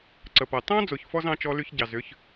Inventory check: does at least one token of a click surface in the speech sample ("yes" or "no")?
yes